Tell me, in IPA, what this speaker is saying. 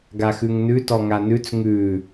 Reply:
ɡ a x ʉ ŋ n ʉ t ɔ ŋ a n ʉ t͡s ŋ ʉ

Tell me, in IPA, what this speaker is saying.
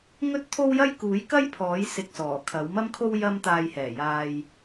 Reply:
ŋ ɵ˥ t̚ t̪ʰ o˥ w j ɐ˥ j k uː˨˥ j k ɐ˥ j pʰ ɔː˨˥ j s ɪ˧ k̚ s ɔː˨˩ kʰ ɐ˨˥ w m ɐ˥ m kʰ o˥ w j ɐ˥ m t̪ aː˧ j h ɛː˨˩ j aː˧ j

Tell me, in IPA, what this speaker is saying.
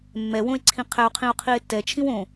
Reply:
mː ɛ w õ e̯ ǀʰ ĩ qʰ ɛ o̯ qʰ ĩ o̯ qʰ i e̯ tː ɛ t͡ʃʰ ĩ w õ

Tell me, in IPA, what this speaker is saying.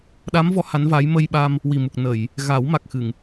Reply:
ɗ a˧˥ m v ɔ˧˥ h a˧˥ n v aː˧˥ j m ə˧ j ɓ a˧ m | w i˨˩ m u˨˩ k̚ n ə˨˩˨ j | ɣ a˨˩˦ w m a˨˩ k̚ x ɨ˨˩˨ ŋ

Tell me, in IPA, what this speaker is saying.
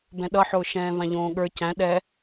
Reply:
b ɛ̃ ɗ ʌ ħ ʊː ʃ ɛ̃ː v ã ʎ õː ɠ ə˞ c æ̃ ɗ ɛ

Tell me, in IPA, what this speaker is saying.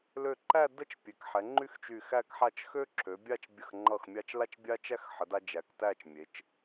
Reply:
l ø˧˩ ǃ æ˥˧ d ə˥ t͡ʃ pʲ e˩˧ k ħ ɛ˩˧ ŋ͡ǃ y˥ x t͡ʃ y˧˩ x æ˥˧ k ħ a˥˧ t͡ʃ x ø˥ ǁʰ ø˩˧ bʲ a˥˧ t͡ʃ bʲ ə˧˩ x ŋ͡ǃ ʌ˧˩ x mʲ a˧ t͡ʃ l a˥˧ t͡ʃ bʲ a˥ t͡ʃ æ˥ x ħ ə˩˧ d a˧ d͡ʒ æ˩˧ k t æ˥˧ t͡ʃ mʲ e˩˧ t͡ʃ

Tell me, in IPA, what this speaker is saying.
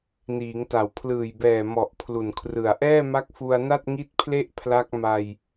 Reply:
n iː˩˦ ŋ t a˨˩ w pʰ l ɯː˨˩ j b ɛː˨˩ m ɔ˨˩ ʔ pʰ l u˨˩ n kʰ r ɯ˨˩ a̯ ʔ ɛː˥˩ m a˦˥ k̚ f u˧ a̯ n a˥˩ t̚ ŋ i˥˩ t̚ pʰ l e˥˩ ʔ pʰ l a˦˥ k̚ m a˧ j

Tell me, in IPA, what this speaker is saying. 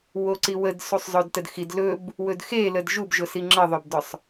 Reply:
w o ǀ i w ə d s u sˤ zˤ ɵ d t ə d x i d l ɵ b | w ɵ d x e l ə d ʒ u b ʒ ʊ s i ŋ͡ǁ ə ðˤ ɵ b d ʊ sˤ

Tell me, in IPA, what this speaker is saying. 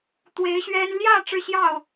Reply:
t̪ w e˧˥ ɪ̯ ɕ ɥ ɛ˥ n l j ä˥˧ ʈ͡ʂ ɻ̩˥˧ ɕ j ɑ˥˩ ʊ̯

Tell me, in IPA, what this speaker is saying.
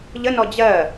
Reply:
ʎ ə n ɔ d͡ʑ ɜ

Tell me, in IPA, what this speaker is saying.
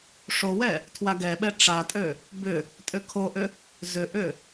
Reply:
ʂ o w ɛ | tʰ w a ɡ ɛ ɓ ɛ ʈ͡ʂ a tʼ ø | b ʏ | tʼ ʏ kʰ o ʔ ʏ | z ʏ ʔ ʏ

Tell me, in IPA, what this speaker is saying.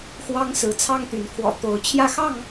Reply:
x w ɑ˦ ŋ s ɹ̩˨˦ t͡sʰ ɑ˦ ŋ t̪ y˨˦ n kʰ w ɔ̰˨˩ t̪ o˨˦ ʊ̯ t͡ɕʰ j ä˥˨ x ɑ˥˨ ŋ

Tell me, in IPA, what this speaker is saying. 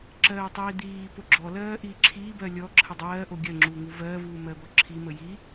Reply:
ǁ ɜː tˤ iː d̪ iː p o ɡ͡ǁ ɔ l ɜː ʔ iː ǁʰ iː b ɜ lʲ ɔ ǁʰ ə dˤ ɜː ʔ o ɡʲ ɜ ŋ͡ǁ uː ŋ u v ɜː v uː m ɜ b ɔ ǁʰ i m ə j i

